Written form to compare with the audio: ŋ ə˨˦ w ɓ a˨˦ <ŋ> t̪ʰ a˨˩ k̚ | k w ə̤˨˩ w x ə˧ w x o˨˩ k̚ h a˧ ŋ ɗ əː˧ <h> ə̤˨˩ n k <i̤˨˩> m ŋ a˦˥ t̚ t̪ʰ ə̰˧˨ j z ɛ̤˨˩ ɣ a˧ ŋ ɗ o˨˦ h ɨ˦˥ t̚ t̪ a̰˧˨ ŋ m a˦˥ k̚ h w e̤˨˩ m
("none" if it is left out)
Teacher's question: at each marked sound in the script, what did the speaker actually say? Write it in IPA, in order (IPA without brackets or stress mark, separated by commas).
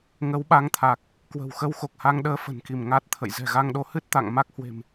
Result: ŋ, f, i˧˩